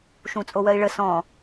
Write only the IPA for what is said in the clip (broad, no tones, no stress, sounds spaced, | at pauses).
ʃ ũ t͡sʼ o w ɜ i̯ ɭ ə s ɔ̃